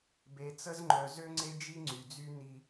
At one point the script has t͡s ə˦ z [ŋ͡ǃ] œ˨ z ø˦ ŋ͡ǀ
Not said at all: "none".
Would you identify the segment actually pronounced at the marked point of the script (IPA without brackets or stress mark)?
ŋ͡ǃ